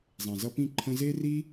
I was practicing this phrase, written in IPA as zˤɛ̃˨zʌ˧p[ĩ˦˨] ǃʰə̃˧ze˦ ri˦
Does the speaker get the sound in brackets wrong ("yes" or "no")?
no